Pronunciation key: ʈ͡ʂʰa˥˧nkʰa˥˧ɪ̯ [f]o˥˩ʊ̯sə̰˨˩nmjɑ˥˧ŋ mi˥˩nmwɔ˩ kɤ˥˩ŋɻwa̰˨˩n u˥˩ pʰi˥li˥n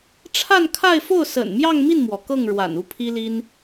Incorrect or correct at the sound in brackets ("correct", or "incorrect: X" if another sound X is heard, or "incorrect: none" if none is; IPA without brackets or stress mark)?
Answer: correct